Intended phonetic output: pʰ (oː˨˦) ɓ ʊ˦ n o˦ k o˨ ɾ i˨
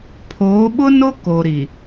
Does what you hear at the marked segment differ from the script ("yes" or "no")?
no